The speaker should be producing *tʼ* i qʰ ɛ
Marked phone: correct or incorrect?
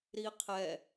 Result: incorrect